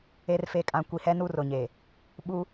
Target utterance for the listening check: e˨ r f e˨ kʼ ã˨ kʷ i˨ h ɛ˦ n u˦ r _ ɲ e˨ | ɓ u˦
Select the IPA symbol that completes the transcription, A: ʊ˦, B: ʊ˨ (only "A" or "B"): B